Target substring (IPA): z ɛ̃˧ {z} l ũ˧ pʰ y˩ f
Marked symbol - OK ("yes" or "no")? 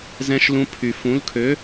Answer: no